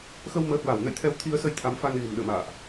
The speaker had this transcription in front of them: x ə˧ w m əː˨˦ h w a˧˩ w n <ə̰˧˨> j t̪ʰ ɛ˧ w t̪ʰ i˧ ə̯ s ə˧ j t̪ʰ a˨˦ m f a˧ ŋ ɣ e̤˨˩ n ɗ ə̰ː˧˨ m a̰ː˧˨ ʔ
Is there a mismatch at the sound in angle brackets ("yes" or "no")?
no